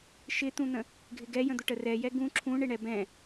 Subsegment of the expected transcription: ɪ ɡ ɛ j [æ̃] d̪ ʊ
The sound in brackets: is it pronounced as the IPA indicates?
no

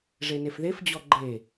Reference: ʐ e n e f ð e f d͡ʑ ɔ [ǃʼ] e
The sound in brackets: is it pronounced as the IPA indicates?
no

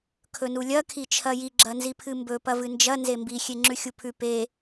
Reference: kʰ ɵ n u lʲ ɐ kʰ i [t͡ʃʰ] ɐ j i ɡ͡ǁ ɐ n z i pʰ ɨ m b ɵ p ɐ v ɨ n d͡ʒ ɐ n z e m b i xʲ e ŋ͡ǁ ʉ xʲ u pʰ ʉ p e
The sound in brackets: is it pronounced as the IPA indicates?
yes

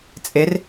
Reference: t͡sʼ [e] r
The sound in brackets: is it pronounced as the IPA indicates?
yes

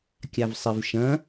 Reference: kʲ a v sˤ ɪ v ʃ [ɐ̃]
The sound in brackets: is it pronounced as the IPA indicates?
yes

